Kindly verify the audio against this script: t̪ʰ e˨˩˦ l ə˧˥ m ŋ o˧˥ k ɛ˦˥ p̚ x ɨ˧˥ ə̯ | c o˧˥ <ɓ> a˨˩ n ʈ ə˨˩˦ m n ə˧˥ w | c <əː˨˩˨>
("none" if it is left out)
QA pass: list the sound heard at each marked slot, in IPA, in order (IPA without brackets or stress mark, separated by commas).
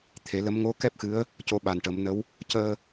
ɓ, əː˧